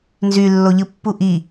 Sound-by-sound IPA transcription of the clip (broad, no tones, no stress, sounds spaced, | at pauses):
n z y lː o ʎ ɯ pː u ʔ i